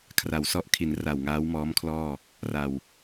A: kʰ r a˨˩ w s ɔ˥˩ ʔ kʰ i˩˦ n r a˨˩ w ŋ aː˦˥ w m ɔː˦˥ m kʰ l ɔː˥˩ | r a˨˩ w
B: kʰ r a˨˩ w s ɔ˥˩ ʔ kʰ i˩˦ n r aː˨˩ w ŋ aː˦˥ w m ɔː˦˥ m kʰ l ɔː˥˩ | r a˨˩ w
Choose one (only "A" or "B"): A